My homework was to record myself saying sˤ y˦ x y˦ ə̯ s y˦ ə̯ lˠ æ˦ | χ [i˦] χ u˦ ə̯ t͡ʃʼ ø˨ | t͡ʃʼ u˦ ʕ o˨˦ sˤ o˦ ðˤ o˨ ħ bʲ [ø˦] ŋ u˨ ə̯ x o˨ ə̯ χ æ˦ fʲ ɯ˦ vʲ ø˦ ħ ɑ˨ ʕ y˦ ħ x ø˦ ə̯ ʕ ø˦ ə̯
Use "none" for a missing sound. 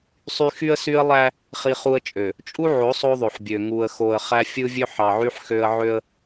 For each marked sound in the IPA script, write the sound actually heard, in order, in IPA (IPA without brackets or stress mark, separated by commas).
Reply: i˦, ø˨